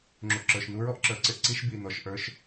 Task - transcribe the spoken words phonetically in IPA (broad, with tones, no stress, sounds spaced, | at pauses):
ŋ͡ǁ u˩ ʔ ǁ ə˞˩ ʃ n u˧ ɹ ɔ˥ ʔ ǁ ə˞˩ ǀ ɪ˥ ʔ ǀ i˧˥ ʃ b i˩ n ɔ˩ ʃ ʔ ə˞˧ ʃ